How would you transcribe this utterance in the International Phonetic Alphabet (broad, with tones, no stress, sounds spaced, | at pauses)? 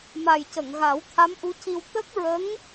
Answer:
m a˨˩ j c ə˨˩˨ ŋ ɣ a˨˩˦ w t̪ʰ a˧˥ m ʔ u˧˥ c i˧ w t̪ ə˦˥ k̚ ɹ ə˧˥ ŋ